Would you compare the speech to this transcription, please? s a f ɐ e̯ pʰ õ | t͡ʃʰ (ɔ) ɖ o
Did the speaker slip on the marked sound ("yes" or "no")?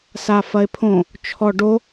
no